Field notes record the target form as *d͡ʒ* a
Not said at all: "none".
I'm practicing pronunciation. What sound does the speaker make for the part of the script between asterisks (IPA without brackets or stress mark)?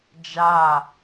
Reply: d͡ʒ